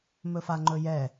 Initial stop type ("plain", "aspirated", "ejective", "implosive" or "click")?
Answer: click